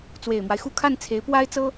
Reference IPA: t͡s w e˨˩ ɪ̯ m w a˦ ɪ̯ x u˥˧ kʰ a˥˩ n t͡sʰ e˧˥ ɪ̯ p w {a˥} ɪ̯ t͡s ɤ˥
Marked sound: correct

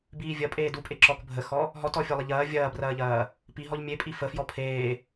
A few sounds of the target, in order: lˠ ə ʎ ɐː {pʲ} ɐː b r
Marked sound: incorrect: vʲ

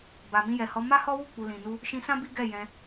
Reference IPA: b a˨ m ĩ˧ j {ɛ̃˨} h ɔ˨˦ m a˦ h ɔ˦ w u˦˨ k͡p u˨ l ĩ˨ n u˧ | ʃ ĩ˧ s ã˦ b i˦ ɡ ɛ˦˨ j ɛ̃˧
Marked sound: incorrect: ɛ˨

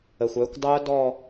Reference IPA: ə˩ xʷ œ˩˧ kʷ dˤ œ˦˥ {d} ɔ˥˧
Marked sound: correct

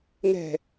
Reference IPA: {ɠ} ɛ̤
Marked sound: incorrect: ŋ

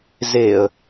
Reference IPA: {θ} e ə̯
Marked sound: incorrect: z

